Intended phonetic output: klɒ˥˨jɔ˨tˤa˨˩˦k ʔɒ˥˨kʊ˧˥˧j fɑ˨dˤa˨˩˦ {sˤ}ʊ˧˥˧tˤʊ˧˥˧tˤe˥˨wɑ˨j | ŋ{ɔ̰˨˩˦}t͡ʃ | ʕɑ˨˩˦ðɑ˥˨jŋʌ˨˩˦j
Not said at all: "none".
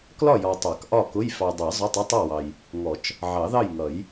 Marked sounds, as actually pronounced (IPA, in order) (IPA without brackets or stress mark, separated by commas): zˤ, ɔ˨˩˦